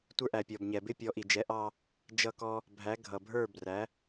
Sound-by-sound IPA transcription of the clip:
tʷ ə˞˧ ʔ æ˩ pʲ ɔ˩ b ɲ ɛ˩ b ɪ˥ pʲ ɔ˩˥ ʔ i˩ d͡ʒ ɛ˩˥ ʔ ɑ˧ | d͡ʒ ʌ˧ k ɔ˧ | bʱ æ˩˥ ɡʱ ʌ˩ bʱ ə˞˥˩ b r æ˩˥

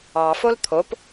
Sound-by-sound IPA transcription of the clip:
ɑ f o l t̪ʰ o p

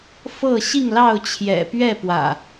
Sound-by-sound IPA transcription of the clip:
f ɤ˥˨ ɕ i˥˨ ŋ l ɑ˥˨ ʊ̯ t͡ɕʰ j ɛ̰˨˩ p ɥ ɛ˥˨ p w ä̰˨˩

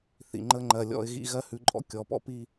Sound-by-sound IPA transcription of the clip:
θ ḭ˨ ŋ͡ǃ ə˧ ŋ͡ǃ ɜ˨ lʲ ɔ̰˧ ɪ̯ ɣ ḭ˧ ɣ ɜ˦ h ʉ˨˦ ǃʼ ɔ̰˦ kʲ ɔ˨ p ɔ̰˦ p i˧

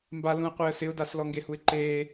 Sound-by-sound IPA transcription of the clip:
m b a l ũ ə̯ qʷ ɪː ə̯ s ɪ ʊ̯ d a s l ɔ ŋ ɡ e h u ɪ̯ ǃ eː

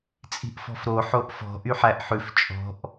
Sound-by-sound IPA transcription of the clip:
t͡sʼ i̤ ʔ f ɔ̤ f ɾ o ħ o ʔ f ɔ̤ ʔ y ħ æ ʔ ħ ʉ f t͡ʃʼ ɔ̤ ʔ

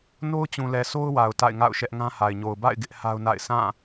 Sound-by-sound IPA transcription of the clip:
n o˦ ʊ̯ t͡ɕ ũ˨ l ɛ˨ sʰ o˦ ʊ̯ w a˨ ʊ̯ t a̰˦˨ ɪ̯ ŋ a̰˦˨ ʊ̯ ʃ ɛ˦ ʔ ŋ ã˦ h a˨ ɪ̯ ɲ o˨ ʊ̯ b a̰˦˨ ɪ̯ ɡ ɪ˦ ʔ h a˦ ʊ̯ n a̰˦˨ ɪ̯ s ã˦˨

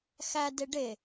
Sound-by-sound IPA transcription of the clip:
x æ d e ɖ e

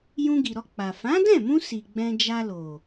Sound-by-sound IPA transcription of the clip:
j ũ˧ ɡ i˨ ɾ ɔ˧ k͡p a˨ f ã˨˦ d ɛ̃˦˨ m ũ˧ s i˨ ɡ͡b ɛ̃˧ d͡ʒ a˧ l o˨

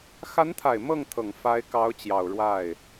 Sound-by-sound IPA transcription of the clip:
x a˧˥ n t̪ʰ a˨˩ ɪ̯ m ɤ˥˩ ŋ t̪ʰ ɤ˨˩ ŋ f a˧˥ ɪ̯ k ɑ˧˥ ʊ̯ t͡ɕ j ɑ˨˩ ʊ̯ ɻ w a˥˩ ɪ̯

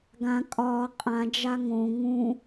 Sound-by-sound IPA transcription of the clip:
ɡ ã kʼ ɒː qʼ ã d͡ʒ a ŋ õ ŋ ũ

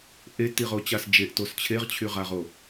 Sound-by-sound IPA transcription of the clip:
ʔ e t i ʁ o t͡ɕ a s d͡ʒ e ʔ t o s t͡ɕʰ e ʁ t͡ɕʰ y ʁ a ʁ o

